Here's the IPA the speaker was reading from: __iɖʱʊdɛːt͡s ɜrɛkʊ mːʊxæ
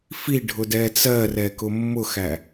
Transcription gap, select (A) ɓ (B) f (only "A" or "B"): B